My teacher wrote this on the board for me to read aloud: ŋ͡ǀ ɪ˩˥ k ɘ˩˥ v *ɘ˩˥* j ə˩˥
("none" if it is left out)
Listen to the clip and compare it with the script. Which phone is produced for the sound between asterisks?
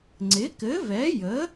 ɛ˩˥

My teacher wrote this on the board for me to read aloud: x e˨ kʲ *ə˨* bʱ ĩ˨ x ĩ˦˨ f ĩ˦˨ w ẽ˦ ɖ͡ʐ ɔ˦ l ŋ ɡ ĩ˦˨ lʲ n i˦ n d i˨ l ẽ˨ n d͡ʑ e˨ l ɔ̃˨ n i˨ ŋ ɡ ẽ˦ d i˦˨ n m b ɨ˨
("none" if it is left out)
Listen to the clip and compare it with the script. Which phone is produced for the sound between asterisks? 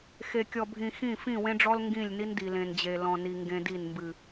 ɔ˨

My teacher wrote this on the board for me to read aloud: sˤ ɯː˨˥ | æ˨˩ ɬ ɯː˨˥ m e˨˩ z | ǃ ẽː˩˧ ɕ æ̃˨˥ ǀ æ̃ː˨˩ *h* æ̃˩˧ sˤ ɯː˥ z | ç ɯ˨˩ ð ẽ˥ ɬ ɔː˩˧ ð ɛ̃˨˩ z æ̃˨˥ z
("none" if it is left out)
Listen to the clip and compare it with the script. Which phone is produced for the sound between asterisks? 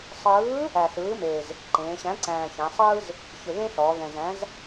ç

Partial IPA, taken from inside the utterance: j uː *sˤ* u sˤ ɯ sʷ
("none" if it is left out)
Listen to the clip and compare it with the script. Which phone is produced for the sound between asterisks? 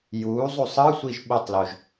zˤ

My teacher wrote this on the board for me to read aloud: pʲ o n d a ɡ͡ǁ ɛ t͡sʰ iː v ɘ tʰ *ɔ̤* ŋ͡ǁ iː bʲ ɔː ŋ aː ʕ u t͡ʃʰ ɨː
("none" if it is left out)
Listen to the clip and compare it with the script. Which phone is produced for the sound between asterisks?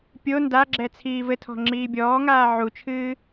ɔ̤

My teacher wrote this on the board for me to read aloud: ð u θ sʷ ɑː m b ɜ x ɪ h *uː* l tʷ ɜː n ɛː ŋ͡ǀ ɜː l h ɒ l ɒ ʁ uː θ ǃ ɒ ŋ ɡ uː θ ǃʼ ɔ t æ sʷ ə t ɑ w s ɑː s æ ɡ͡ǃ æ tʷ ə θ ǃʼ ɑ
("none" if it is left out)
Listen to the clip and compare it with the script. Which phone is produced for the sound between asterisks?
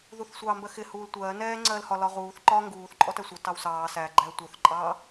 uː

